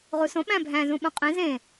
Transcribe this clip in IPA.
ʁ u s õ ɓ æ̃ bʱ æ̃ z ũ ɓ ũ qʼ ĩ z ẽ

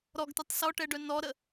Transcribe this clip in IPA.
ɾ ɔ ɡ t ɛ tˤ s ɔ ʈ ɛ ɖ œ n ɔ ɾ ə

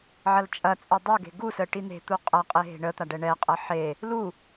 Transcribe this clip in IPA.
ʕ ɐ l t͡ʃʼ ɐ t͡sʼ ɛ dˤ u ɡ e̤ ɡ u s ə ʈ i n̪ e̤ t̪ u qʼ ɐ qʼ e ɦ e̤ ɳ ə t̪ a ɖ ɛ ɳ ɛ qʼ ɐ ħ e | l u

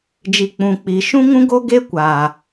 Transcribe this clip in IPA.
d͡ʒ i˨ k͡p ũ˨ k͡p i˨ ʃ ũ˦ ŋ ũ˦ ɡ o˦ ɡ e˦ kʷ aː˨

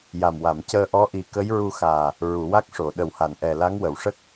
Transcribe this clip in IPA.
j a˨˩ m w a˨˩˨ m c əː˧ ʔ ɔ˧˥ ʔ i˨˩ k ə˧˥ j ɹ u˧ x aː˨˩ | ɹ u˨˩˨ w a˦˥ k̚ ʂ o˨˩˨ ɗ ə˨˩ w h a˨˩˨ n ʔ ɛ˨˩ l a˧˥ ŋ w ə˨˩˨ w ʂ ə˦˥ k̚

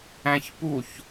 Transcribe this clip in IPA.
æ̃ ç p u ç

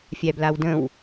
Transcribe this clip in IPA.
fʲ æ b l a w d ə̃ w

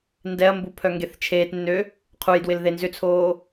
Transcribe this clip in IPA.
n d ɛ ɐ̯ m b u pʰ œ ŋ ɡ e θ t͡ʃʰ eː t nː ø | qʰ u j d w ɪ l ð e n z ʏ t͡sʰ oː

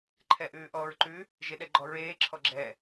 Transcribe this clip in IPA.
ǃʰ ɛ ʔ ʉː ʔ ɔː ɹ ǃ ʉ | ʒ e ɗ ɛ ɡ͡ǃ ɔ ɹ eː ǁʰ ɔ ɡ͡ǁ ɛ

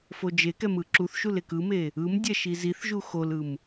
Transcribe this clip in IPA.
f o d͡ʒ e k ɛ m ɯ ǁ u θ ʃ u l e k ɯ m e | ɯ m dʲ ɛ ʃ i z i θ ʒ u x o l ɯ m

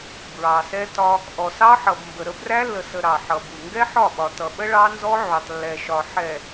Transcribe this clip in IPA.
b ɹ ɑ˨ s ɛ˦ t ɒ˦ | ʔ ɔ˨ s ɑ˦ ħ ʌ˨ b m b ə˨ ɾ ə˦ b r æ˦ lː ə˨ s ə˨ ɾ ɑ˨ ħ ʌ˨ b u˨ ŋ ɡ ɛ˦ ħ ɒ˦˨ ɓ ɒ˨ t ʌ˨ ɓ ə˦ ɭ ɑ˦ n z ɔ˦ ʕ u˨ tˤ lː ɛ˨ ʃ ɒ˨ ħ ɛ˨

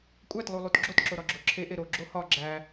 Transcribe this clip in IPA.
kʷʼ æ t lˠ u lˠ u t ɡ͡ǁ o t ǁ o ɾ ɒ ɡ͡ǁ o ǁʰ e ʔ e ɾ o ɡ͡ǁ o h ɒ ɡ͡ǁ æ

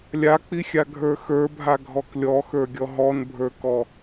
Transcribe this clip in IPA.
lʲ a k͡p i xʲ a ɡʱ ə˞ x ə˞ bʱ a ɡʱ ɔ k lʲ ɔ x ə˞ ɡʲ ɔ ɦ ɔ n bʱ ə˞ k ɔ

